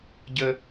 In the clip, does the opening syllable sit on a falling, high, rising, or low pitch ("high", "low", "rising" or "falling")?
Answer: low